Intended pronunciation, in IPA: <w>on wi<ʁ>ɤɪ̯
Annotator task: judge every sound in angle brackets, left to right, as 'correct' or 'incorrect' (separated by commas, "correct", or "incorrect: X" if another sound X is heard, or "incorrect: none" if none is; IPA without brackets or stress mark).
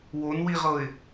correct, correct